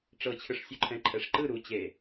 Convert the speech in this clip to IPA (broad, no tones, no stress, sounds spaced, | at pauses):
ʈ͡ʂ ɤ t͡ɕʰ ɯ ʂ sʲ u ǃʰ ɛ̃ ǃʰ ɛ ʂ ǃ ɯ ɾ u t͡ɕ e